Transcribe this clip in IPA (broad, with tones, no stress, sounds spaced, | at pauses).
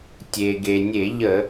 tʲ e˩ ɡ e˩ nʲ e˧˩˧ ʎ ə˧˩˧